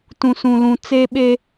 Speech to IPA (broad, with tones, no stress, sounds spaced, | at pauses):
t ũ˨ s ũ˨ l ũ˨ t͡s e˦ ɓ e˦